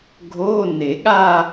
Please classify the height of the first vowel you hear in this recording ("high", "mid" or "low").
mid